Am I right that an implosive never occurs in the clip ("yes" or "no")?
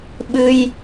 no